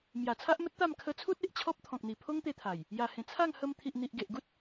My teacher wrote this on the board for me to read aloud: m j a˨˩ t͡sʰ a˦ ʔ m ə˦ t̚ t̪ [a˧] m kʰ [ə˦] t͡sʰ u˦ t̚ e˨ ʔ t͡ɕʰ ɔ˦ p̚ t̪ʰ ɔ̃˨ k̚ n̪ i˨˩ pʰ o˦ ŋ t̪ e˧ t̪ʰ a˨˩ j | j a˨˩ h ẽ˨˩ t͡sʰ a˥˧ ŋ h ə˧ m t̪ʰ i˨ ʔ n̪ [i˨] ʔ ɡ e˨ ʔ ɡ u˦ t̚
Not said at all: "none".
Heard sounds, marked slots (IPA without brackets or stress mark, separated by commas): a˥˧, ə˧, i˨